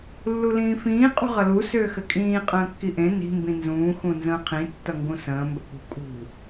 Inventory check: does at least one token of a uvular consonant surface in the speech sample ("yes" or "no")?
yes